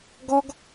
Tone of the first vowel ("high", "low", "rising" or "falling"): high